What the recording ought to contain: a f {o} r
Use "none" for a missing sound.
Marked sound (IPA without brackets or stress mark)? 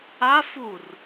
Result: u